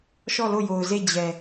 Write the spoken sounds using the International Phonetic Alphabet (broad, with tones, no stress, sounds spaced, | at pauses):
ʃ ɔ˦˨ l o˦˨ j o˨ ʊ̯ z e˦˨ d͡ʑ ɛ˨